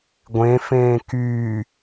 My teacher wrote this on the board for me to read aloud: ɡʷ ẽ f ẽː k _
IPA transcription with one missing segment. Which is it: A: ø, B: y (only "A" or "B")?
B